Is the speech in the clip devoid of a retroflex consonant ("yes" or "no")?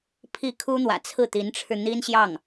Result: no